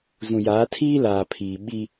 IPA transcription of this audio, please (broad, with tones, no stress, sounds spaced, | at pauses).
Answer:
z ũ˨ j aː˨˦ tʰ iː˦ l aː˨ pʰ iː˨ ɓ i˦